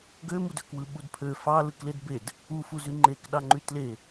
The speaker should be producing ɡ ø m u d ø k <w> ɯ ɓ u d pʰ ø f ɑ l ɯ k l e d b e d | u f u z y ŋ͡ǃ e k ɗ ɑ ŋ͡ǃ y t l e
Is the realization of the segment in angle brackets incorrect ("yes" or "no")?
no